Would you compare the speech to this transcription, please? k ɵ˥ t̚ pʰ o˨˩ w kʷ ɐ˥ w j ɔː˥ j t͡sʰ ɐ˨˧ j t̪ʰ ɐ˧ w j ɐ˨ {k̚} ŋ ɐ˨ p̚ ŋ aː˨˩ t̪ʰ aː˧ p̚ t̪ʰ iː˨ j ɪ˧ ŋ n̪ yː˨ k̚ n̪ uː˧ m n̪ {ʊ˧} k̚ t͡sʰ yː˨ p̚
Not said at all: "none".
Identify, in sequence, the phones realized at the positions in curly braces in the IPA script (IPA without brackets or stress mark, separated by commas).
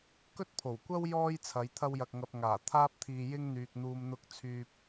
k̚, ʊ˧